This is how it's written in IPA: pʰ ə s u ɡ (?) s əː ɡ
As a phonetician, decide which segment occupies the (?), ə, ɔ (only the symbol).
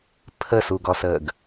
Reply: ɔ